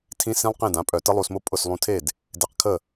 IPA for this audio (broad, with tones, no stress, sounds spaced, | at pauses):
tʰ ĩ˦˥ s ĩ˦˥ lˠ q ẽ˥˩ d ã˩˧˩ pʼ œ˧˩˧ t ə˦˥ lˠ u˧ s m ʊ˦˥ pʼ ʊ˥˩ s lˠ ũ˧ tʰ e˥˩ d | d e˧ q kʰ ə˥˩